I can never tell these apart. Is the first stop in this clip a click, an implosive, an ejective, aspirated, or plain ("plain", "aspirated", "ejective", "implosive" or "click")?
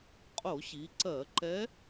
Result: ejective